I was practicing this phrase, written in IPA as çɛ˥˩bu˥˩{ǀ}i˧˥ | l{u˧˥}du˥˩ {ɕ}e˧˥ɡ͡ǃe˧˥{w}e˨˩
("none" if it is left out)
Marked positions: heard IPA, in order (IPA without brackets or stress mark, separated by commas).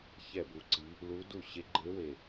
ǀ, u˧˥, ɕ, w